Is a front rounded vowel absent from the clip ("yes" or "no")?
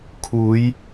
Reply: yes